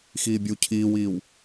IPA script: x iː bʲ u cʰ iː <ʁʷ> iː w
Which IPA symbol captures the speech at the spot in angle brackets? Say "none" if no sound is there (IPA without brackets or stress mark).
w